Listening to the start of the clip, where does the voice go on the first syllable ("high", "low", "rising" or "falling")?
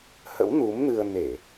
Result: rising